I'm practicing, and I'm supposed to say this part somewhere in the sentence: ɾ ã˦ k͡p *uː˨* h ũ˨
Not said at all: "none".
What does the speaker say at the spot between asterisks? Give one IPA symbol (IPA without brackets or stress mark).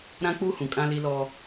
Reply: uː˦